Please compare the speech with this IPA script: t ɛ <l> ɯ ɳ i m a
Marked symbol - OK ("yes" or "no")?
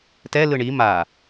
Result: yes